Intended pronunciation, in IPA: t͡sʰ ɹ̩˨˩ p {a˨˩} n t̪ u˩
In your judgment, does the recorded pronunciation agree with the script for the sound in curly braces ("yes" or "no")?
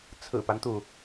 no